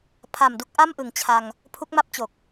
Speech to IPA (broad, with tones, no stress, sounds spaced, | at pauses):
pʰ a˨˩ m d u˥˩ k̚ ʔ a˥˩ m ʔ ɯ˩˦ ŋ t͡ɕʰ a˧ ŋ | pʰ u˦˥ k̚ m a˥˩ p̚ t͡ɕ o˨˩ k̚